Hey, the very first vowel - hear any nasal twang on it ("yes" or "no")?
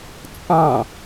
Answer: yes